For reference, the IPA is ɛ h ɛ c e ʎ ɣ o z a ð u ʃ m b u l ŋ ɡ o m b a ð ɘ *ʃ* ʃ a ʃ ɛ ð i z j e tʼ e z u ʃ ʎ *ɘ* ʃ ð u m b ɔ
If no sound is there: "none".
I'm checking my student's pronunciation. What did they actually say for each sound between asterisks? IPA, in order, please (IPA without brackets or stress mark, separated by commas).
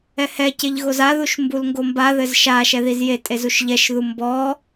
z, ɛ